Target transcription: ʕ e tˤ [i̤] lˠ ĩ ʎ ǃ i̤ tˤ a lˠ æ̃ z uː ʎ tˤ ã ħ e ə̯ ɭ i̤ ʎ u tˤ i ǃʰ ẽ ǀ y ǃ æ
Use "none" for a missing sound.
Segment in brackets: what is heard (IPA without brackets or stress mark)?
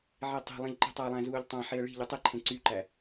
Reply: i̤